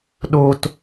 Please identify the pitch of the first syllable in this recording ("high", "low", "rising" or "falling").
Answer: high